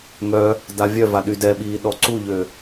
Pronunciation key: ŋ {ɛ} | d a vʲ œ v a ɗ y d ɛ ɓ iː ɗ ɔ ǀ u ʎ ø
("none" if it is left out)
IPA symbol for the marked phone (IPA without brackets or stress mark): œ